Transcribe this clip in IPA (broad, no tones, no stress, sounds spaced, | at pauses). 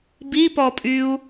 b i p ɔ pʼ y u̯